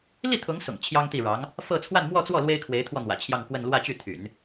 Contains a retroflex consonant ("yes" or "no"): yes